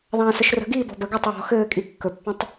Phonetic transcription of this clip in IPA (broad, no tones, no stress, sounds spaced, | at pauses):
ðˤ ãː s ə ʃ r ə̤ ɡ iː b ɔ̤ b ə ɡ a tˤ w ɔ̤ x ɘː kʼ i kː ɵ pː ĩ tˤ